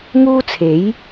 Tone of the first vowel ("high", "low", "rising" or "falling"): high